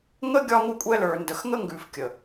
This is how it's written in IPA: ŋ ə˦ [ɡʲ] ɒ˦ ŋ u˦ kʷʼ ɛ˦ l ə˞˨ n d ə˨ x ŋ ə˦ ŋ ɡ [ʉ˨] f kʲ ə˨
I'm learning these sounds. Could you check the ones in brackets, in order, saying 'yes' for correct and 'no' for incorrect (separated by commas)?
yes, yes